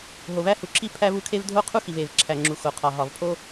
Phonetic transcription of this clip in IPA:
ɦ o˩ v æ˥ h u˩ ǁʰ i˥ pʰ æ˥ v u˥ kʰ e˥ v dʱ o˥ qʰ u˥ x i˩ v e˩ v ǁʰ æ˩ ŋ͡ǁ u˩ x o˩ qʰ ɒ˩ ɦ ɒ˩ v pʰ o˥

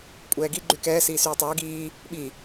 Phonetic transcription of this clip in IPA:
kʷʼ ɛː ɡ i ɡ͡ǃ y k ɛː s iː s yː tˤ ɛː ɡ iː | ɓ i

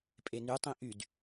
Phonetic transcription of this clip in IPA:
pʼ e n y tˤ ĩ ʔ y d

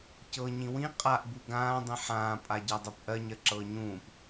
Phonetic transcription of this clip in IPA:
c ɤ ɲ ĩ w ĩ qʼ a ʔ b u ɡ ãː dˤ ĩ ħ ãː pʼ a ɟ a dˤ ɤ p ʔ ɜ ɲ ɜ ǁ ɤː ɲ ũː p

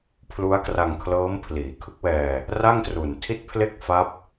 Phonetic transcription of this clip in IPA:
pʰ l u˦˥ a̯ k r a˧ ŋ kʰ l ɤː˦˥ m pʰ l iː˩˦ kʰ ɯ˦˥ k̚ w ɛː˧ | r a˥˩ ŋ t r u˨˩ n tʰ i˥˩ t̚ pʰ l e˥˩ k̚ f a˦˥ p̚

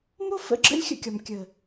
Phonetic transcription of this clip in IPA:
m o˦ f ə̰˨˦ ɡ͡ǁ ə̰˦ lʲ xʲ ə̰˧ kʲ ɒ˨ m kʲ ə˨

